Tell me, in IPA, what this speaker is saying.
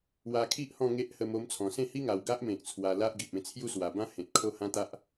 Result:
wa˧kʰi˦ʔ hɔ̃˥˧ŋe˦ʔ hə˧m o˧mt͡sʰɔ̃˨˩sẽ˥˧hi˦ ŋa˨˩wɡa˦ʔmẽ˨k̚ t͡sʰwa˧la˦ʔɡi˨p̚ẽ˥˧ t͡sʰju˦swa˨˩bã˦ hẽ˨t̚kʰo˦hã˦t̪a˦ʔ

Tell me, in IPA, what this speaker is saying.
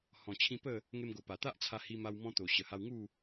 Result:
hɔ̃˨˩t͡ɕʰĩ˧ pə˥˧ | ŋe˧mɡo˨˩ pa˨˩t̪a˦ʔt͡sʰa˧ hi˧ma˧w mɔ̃˧t̪o˨˩ ɕə˨˩ha˧wŋu˥˧

